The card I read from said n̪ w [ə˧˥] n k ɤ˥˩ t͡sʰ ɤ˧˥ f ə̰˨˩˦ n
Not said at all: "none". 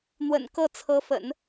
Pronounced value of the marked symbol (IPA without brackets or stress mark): ə̰˨˩